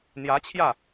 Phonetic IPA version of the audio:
n̪ j ä˧˥ t͡ɕʰ j ä˥˩

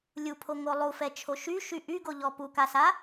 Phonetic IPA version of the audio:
lʲ u pʰ o ŋ o lˠ u f ɛ t͡ʃʰ o ʃ y ʃ y ʔ y ɡ o ʎ ɔ p u k a s a

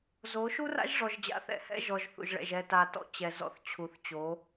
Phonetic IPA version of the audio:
z o˨˦ ʃ u˦ r a̰˦ ʒ ʐ ɔ˨ ʒ d͡ʑ a̰˨˦ θ ɛ̰˨ h ɛ̰˦ ʒ ɔ˨ ʒ θ ṵ˨ ʒ ɭ ɛ̰˨ ʒ ɛ˨ t a˨ t ɔ̰˦ t͡ɕ ɛ˨ z ɔ̰˦ θ t͡ɕʰ u˨ θ t͡ɕ o˨˦

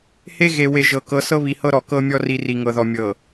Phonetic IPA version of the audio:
h e˦ ɣ e˨ w e˨ ʒ ɤ˨ k ɤ˨˦ s ɤ˦ β i˨ h ɤ˦ ɾ ɔ˨ k ɤ˦ mʲ ɔ˦ r i˨ r i˨ ŋ ɤ˨ ð ɔ˨ mʲ ɤ˨

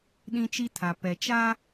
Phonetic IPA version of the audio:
ɗ ĩ˦ t͡ʃ i˦ tʰ a˨ p ɛ˨ t͡ʃ a˦

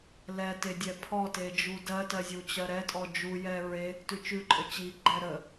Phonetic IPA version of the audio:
l ɛ t e dʲ ɛ pʰ ɔ t e d͡ʒ u d ɜ t ɜ zʲ u t͡ɕ ɜ ɾ ɛ tʼ ɔ d͡ʒ u j ɛ ɹ e | t ʉ t͡ʃ ʉ ǃʼ ə t͡ɕ i ɡ͡ǃ ɛ ɾ ə

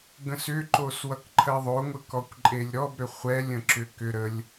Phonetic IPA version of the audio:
ɡ ə̃ s ʏ ǃ o s w ʌ k ǃʰ ɜ ðˤ o ŋʷ ə k ɔ kʷ ǃʼ e lʲ ɾ ɔ b ɾ ʏ χʷ ɛ lʲ ə̃ ǁ ʏ k ʏ ɾ ə lʲ

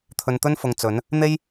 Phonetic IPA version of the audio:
t̪ʰ ɵ˧ n t̪ ɵ˥ n f ʊ˨ ŋ t͡s ɵ˨˥ n | n̪ e˥ j

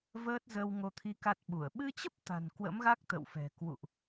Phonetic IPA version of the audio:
v əː˦˥ t̚ z əː˧ w ŋ o˧ t̪ʰ i˧ k a˦˥ t̚ ɓ u˧˩ ə̯ ɓ ɨ˧ t͡ɕ ə˦˥ p̚ t̪ a̤˨˩ n k w ə̰˧˥ m ɣ a˦˥ k̚ t̪ ə̰˧˨ w f ɛ̤˨˩ k w ṵ˧˨ ʔ

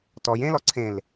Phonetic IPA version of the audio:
t ɔ j ẽ l ɔ ǀʰ ẽ l

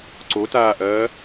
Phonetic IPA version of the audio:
ǀ o t aː ʔ ɐː

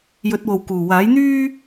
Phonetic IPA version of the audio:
j ɵ˨˥ t̚ w o˨ w k uː˨˩ w aː˨˥ j n̪ yː˥

